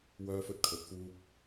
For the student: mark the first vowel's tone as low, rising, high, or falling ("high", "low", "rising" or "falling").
high